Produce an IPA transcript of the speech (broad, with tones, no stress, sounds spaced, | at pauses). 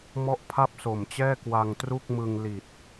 m ɔ˥˩ ʔ pʰ a˥˩ p̚ s o˨˩ m t͡ɕ ɛː˥˩ k w a˧ ŋ t r u˥˩ k̚ m ɯ˧ ŋ l i˨˩ t̚